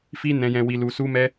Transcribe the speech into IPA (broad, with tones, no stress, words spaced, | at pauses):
fi˧nɛ̃˨jɛ̃˨ wi˨lu˨su˧mɛ˧